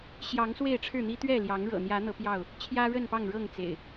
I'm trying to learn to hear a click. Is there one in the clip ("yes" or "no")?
no